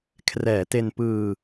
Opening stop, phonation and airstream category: aspirated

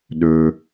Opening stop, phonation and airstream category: implosive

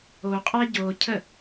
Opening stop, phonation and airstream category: ejective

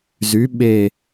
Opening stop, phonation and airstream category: implosive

